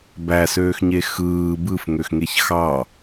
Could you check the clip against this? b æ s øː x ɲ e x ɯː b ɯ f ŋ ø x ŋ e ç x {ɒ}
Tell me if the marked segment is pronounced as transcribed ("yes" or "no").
no